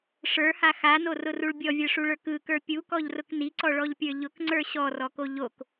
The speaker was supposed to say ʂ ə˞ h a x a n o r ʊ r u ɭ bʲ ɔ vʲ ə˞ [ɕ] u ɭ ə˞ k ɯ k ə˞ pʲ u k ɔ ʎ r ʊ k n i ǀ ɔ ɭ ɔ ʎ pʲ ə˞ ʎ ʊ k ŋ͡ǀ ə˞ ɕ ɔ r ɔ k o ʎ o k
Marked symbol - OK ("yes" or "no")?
no